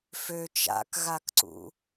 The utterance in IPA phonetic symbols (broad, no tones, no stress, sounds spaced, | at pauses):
f ø t͡ʃ a̰ k ɣ a k ǀ ṵ